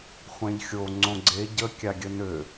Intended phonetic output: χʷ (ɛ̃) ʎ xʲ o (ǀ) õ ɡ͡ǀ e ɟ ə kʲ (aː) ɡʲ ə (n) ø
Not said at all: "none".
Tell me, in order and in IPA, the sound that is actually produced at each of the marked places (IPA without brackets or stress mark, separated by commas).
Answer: ɛ̃, ŋ͡ǀ, a, n